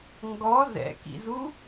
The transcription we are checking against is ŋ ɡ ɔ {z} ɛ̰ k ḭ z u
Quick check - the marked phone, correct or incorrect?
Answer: correct